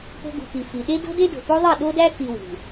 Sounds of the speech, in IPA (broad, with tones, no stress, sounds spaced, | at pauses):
p o̤˧ ɡ ṳ˨ p i˨ f i˨ ɗ e˦ d o̤˦ d e˦ d o̤˨ p o˦ ðˤ i˦˨ ɗ o˦ d æ˦ k i˧ w ṳ˨